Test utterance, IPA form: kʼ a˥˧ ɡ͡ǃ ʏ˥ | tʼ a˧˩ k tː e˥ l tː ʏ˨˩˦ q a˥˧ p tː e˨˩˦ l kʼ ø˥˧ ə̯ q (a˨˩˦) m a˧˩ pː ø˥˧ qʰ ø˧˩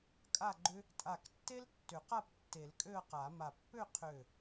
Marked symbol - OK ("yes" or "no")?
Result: yes